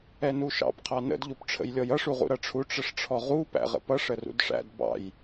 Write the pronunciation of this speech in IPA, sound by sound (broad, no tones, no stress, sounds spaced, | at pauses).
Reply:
ɛ n u ʃ ɑ̰ p qʰ ɑ n ə̰ d ʎ u p ʈ͡ʂʰ ə̰ j lʲ ɔ j ʌ ʂ u ʁ ṵ ɾ ʌ ʈ͡ʂʰ u ʈ͡ʂ ə ʂ ʈ͡ʂʰ ɔ ʁ u p æ̰ ʁ ə̰ p ʌ ʂ ə r ṵ d ʂ æ̰ d b ɑ̰ j